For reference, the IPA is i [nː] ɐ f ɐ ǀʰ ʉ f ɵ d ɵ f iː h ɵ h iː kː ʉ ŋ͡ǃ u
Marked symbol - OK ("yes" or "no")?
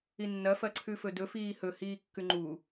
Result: yes